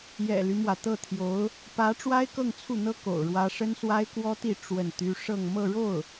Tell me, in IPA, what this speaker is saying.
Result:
j ɛ̰˨˩ l y˦ m w ä˩ t̪ ɤ˥˩ t̪ʰ j o˧˥ ʊ̯ | p ä˧˥ ʈ͡ʂ w a˥ ɪ̯ k ɤ˥˧ ŋ t͡sʰ u˥˩ n̪ ɤ˥ k o̰˨˩ ʊ̯ ɻ w ä˥ ʂ ə˥ n s w a˥ ɪ̯ k w ɔ˥ t̪ i˥˧ ʈ͡ʂ w ə˥˩ n t̪ y˥ ʂ ɤ˥˧ ŋ m ɤ˥˧ ɻ o˥˩ ʊ̯

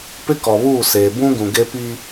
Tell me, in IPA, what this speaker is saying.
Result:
p ɪ˦ k ɔ˨ β uː˦˨ s eː˨ b ũ˦ ɡ ũ˨ ɡ e˦ p i˦

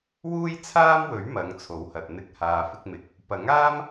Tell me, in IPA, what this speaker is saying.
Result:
w uː˥ j t͡sʰ aː˥ m w ɵ˨˥ ɥ m ɐ˨˧ ŋ t͡sʰ o˨˥ w h ɐ˨ t̚ n̪ ɪ˧ k̚ h aː˨ f ɪ˧ k̚ m ɪ˨ k̚ | p ɐ˨˥ ŋ aː˥ m

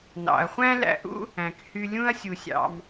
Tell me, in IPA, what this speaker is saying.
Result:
n ɑ̰˩ ɐ̯ χʷ æ̃˥ l æ̰˧ ʔ ṵ˥ | æ̃˩ k h y˧ lʲ ũ˥ ɐ̯ sʲ u˩ sʲ ɑ̰˩ m

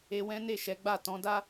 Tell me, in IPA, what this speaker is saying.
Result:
e˧ w ɛ̃˦ n e˦˨ ʃ ɛ˨˦ ɡ͡b a˦˨ t ɔ̃˨˦ d a˦

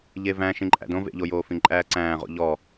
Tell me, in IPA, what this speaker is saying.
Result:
ʎ e v æ̃ ʃ ĩ ǃʼ æ̰ d õ v ḛ ʎ o j oː f ĩ ǃʼ æː ǀ æ̃ː ʁ o̰ ʎ ɔ

